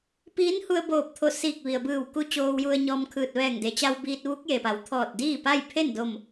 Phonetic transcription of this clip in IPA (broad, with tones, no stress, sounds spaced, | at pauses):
p iː˧˥ n h u˧ ə̯ b oː˧˩ p̚ t̪ʰ o˧˩ s iː˧˩ k̚ ʋ i˩ ə̯ b ɯː˧˩ w k u˧ t͡ɕ oː˧ w j u˧ ə̯ ɲ ɔː˧ m kʰ ɯː˧˩ t̚ ʋ ɛː˧˩ ŋ d e˩ t͡ɕ a˧ w b iː˧ t̚ ʋ u˧˥ k̚ j e˩ p a˩˧ w t̪ʰ ɔː˧˩ t̚ d iː˥˨ p a˥˨ j pʰ e˥˨ n d o˧˩ m